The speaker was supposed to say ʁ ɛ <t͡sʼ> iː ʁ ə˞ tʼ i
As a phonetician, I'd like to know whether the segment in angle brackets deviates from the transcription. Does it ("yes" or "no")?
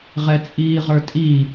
no